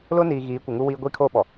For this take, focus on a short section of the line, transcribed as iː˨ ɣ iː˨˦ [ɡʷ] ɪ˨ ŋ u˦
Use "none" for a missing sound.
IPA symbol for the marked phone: kʷ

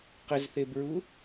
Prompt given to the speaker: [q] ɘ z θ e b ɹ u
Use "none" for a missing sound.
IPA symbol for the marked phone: q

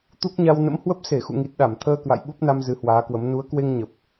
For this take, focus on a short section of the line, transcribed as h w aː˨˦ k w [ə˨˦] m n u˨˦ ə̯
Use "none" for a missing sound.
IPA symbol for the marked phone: ə˨˦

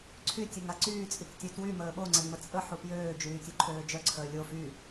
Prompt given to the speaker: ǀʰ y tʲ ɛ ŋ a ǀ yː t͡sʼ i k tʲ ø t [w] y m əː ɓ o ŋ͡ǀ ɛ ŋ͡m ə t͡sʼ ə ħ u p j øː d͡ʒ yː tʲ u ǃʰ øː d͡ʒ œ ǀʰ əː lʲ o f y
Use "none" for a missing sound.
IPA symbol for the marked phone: w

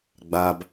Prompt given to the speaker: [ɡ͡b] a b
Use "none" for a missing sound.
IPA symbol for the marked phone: ɡ͡b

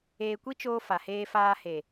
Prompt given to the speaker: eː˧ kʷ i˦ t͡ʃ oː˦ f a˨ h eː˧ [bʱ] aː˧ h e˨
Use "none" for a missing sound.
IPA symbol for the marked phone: f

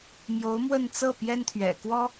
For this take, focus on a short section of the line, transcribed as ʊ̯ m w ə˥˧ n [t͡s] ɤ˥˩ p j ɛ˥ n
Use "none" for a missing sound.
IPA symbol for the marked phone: t͡s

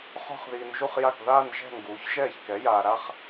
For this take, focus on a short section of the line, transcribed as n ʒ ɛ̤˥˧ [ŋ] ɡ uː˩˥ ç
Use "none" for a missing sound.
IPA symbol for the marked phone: ŋ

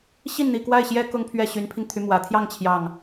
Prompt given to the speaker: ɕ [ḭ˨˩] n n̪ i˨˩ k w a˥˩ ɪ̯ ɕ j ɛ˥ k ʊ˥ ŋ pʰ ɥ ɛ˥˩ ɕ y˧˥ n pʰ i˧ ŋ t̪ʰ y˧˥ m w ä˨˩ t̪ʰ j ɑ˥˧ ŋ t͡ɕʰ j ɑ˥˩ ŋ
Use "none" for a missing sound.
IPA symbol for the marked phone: i˥˩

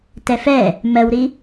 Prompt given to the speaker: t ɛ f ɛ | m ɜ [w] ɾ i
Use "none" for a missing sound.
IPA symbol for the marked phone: w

